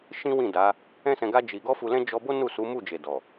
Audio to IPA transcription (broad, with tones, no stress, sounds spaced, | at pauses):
ʃ ĩ˦ w ĩ˦˨ d a˨˦ | ɛ̃˦ s ɛ̃˧ ɡ a˦ d͡ʒ i˧ ɡ ɔ˦ f u˧ l ɛ̃˦ d͡ʒ ɔ˧ b o˦ n u˦˨ s u˨˦ m u˦˨ d͡ʒ e˨ d ɔ˨